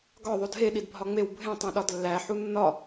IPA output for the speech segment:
ɡ ɒ ðˤ o d ɦ e ɗ i d bʱ ɒ ŋ͡m e w bʱ ẽ tˤ õ ɗ ɒ d lː æ ħ u nː ɒ

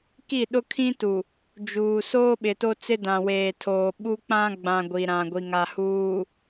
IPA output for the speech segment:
k i˦˨ ɗ ʊ˦ kʰ ĩ˦ t u˨ | d͡ʒ uː˨ s oː˦ ɓ ɪ˨ t o˦ t͡s ɪ˦ d ã˨ w eː˨ tʰ oː˨ ɓ u˦ k͡p ã˦ ɡ͡b ã˨ ɡʷ i˨ ɾ ã˨ ɡʷ i˨ ŋ a˨ h uː˨

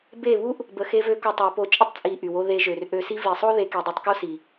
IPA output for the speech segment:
b e˦˨ β u˦ ʔ | b ə˨ x e˧ v ø˧ k u˧ tˤ ø˨˦ p o˧ t͡ʃʼ ə˦ tˤ t͡sʼ i˨ ʔ y˨ w o˧ ð e˧ ʒ ø˨ r ʔ ø˧ s i˦ v i˨ sˤ o˦ ð e˧ k i˨ dˤ o˧ tˤ k o˦ s i˨

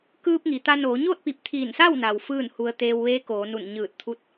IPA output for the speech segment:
k ɯː˧ p̚ ŋ i˩ t̪ a˧ n oː˩˧ ɲ oː˥˨ t̚ p i˧˩ p̚ t̪ʰ iː˧˩ n s a˥˨ w n a˩ w f ɯː˥˨ n h u˧ ə̯ t̪ eː˧ w ʋ eː˧˥ k oː˩˧ n u˧˩ n ɲ ɯː˧˩ t̚ t̪ʰ u˥˨ t̚

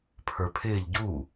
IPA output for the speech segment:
pʰ ə˞ pʰ ɪː ʎ ɟ u

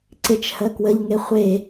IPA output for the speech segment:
ǀ ɪ t͡ʃ h ɜ k w ə ʎ ŋ e χʷ e

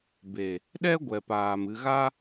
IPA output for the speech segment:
b e˨ | ɗ ɛ˦ ɡʷ ɛ˨ p aː˨ m ɨ˧ ɣ a˦

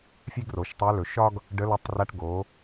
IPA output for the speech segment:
fʲ e˥ ɡ r o˩˧ ʃ tˤ æ˧˥ l ɵ˩ ʃ ɒ˥ ɡ | ɖ ə˧˥ l ɒ˧˥ tˤ r a˧˥ ʈ ɡ o˩˧

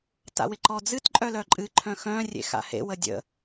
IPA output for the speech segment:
t a̰ w ɪ ǃ ɔ d͡z ɨ t ǃʼ œ l œ ǃʼ ɨ ǃʰ œ̃ x œ̃ rʲ ḛ x a̰ h ḛ w ə dʲ ə̰

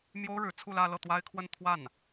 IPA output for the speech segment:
m j o˥ ʊ̯ ɻ ɻ̩˧˥ t͡sʰ u˥˧ l ä˥˧ l ɤ˥˩ t̪ w a˥ ɪ̯ kʰ w ə˥˧ n t̪ʰ w a˥˩ n

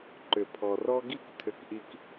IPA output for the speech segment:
ǃ ʏ˧˩ pʰ ɔ˧ r ɔ˥ ɡ i˥˧ k tʰ ʏ˧˩ k ʔ i˧ k

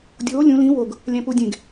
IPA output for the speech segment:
dʲ oː lʲ ũ l ĩ w o ɡ | lʲ æ̃ p u dʲ ẽ ɡ

